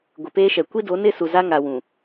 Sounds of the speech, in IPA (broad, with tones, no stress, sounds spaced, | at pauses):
ɡʷ ɪ˨ p eː˦ ʃ ɛ˨ kʷ i˦ d o˨˦ n ɪ˦˨ s u˨ z a˦ ŋ a˨ w ũ˨